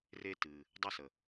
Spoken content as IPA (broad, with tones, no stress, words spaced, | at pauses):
re˧ tɨ˩ | dˤɐ˥sə˩